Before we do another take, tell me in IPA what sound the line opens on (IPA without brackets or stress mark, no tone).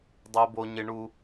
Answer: dˤ